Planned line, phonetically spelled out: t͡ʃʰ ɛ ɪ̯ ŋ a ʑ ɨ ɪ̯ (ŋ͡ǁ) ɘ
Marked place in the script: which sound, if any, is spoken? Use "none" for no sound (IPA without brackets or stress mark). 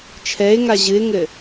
ŋ